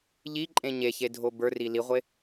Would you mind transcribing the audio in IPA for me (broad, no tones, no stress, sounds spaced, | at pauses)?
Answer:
ʎ i ǃʼ ẽ ɲ e ç e dʱ o b ə˞ r i l i ʁʷ e